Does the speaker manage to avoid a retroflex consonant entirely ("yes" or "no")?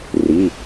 yes